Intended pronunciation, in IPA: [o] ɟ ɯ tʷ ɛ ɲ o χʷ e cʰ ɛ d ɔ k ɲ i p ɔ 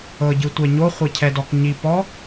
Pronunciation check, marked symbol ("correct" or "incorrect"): incorrect